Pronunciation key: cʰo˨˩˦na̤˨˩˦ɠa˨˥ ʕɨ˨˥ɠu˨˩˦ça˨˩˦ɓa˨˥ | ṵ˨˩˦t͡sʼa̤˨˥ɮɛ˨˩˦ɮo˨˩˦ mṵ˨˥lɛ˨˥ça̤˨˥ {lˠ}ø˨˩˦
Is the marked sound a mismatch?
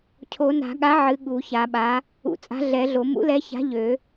yes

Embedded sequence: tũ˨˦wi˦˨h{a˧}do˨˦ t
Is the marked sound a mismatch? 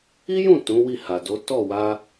yes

